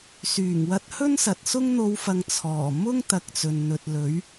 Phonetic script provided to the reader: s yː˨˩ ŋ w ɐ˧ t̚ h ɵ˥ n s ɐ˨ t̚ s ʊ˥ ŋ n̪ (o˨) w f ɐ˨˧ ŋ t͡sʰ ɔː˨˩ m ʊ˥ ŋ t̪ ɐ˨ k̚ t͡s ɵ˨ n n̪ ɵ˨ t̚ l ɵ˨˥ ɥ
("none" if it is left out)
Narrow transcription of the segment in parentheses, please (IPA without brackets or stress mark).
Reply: o˧